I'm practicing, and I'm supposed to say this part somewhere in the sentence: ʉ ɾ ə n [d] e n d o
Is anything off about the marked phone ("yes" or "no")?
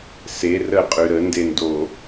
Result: no